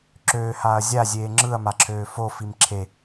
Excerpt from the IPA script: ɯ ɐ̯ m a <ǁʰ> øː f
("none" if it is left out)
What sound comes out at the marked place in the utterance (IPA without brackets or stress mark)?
ǁʰ